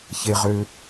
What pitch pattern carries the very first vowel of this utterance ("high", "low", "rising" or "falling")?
low